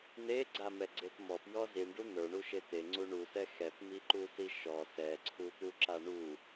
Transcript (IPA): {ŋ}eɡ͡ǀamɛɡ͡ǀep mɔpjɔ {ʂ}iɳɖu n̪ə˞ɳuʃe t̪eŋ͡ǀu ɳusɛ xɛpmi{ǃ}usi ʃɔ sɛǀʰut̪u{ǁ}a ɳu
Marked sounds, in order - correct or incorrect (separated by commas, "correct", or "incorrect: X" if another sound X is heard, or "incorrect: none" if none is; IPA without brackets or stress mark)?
incorrect: n̪, incorrect: z, correct, correct